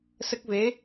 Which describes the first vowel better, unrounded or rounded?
unrounded